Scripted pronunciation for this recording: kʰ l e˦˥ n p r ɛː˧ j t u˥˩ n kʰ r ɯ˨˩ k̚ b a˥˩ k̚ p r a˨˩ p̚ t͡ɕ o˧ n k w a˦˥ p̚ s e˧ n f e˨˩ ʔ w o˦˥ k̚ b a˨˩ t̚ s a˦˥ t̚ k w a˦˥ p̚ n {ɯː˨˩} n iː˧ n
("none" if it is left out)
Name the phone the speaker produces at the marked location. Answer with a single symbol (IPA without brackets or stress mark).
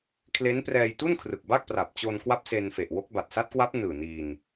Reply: ɯː˨˩